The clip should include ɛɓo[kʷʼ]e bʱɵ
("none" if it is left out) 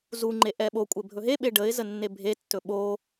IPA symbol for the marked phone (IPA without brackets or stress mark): kʷʼ